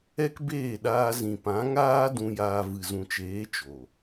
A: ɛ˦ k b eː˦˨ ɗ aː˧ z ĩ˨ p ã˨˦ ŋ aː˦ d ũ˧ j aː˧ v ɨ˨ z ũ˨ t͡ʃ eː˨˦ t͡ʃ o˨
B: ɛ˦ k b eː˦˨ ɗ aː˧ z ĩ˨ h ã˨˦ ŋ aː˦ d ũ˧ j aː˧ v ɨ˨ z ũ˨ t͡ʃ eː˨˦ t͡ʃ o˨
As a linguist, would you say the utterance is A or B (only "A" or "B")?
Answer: A